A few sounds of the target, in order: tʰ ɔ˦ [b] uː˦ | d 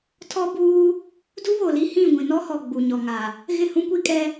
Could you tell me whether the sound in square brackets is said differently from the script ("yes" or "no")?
no